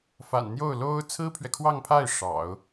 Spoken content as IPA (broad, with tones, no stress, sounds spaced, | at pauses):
f a̰˨˩ n n̪ j o˥˩ ʊ̯ l o˥ ʊ̯ t͡sʰ ɹ̩˥ pʰ ɥ ɛ˨ kʰ w ɑ˥˧ ŋ pʰ a˥˩ ɪ̯ ʂ ɑ̰˨˩˦ ʊ̯